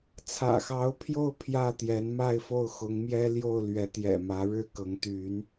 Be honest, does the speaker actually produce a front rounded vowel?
yes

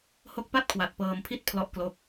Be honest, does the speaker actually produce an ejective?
no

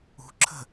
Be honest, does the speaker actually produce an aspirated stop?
yes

